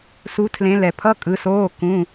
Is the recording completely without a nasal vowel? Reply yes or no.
no